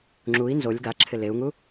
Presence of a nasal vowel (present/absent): absent